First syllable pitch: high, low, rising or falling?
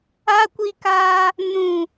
high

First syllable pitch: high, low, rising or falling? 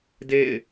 falling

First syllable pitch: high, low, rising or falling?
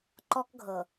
high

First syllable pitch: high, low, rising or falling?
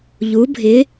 rising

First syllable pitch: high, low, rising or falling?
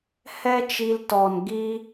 high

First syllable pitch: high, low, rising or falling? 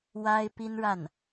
high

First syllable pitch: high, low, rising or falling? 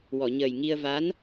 low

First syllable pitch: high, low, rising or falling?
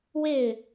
falling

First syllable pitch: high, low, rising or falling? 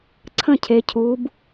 falling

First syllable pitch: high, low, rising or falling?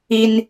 high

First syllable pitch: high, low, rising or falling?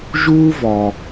high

